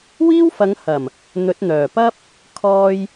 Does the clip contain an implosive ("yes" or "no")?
no